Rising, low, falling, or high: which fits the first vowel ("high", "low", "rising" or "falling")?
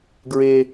low